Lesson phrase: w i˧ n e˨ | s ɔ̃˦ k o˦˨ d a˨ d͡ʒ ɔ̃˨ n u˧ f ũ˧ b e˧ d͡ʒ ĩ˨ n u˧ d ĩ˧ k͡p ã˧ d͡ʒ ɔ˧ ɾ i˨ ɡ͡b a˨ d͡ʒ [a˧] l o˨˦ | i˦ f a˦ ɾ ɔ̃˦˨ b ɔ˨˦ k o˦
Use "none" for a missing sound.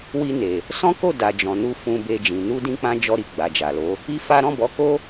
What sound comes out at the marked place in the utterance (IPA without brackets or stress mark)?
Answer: a˨